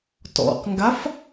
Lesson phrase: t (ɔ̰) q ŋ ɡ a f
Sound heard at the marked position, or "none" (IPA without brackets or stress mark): ɔ̰